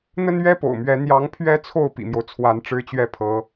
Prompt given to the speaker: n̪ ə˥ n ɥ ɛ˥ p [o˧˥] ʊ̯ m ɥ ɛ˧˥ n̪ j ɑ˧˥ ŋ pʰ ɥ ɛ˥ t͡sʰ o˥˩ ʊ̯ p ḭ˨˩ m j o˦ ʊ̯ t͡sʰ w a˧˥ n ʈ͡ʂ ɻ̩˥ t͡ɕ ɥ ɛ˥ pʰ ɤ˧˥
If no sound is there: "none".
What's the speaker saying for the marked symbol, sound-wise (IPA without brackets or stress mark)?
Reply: o̰˨˩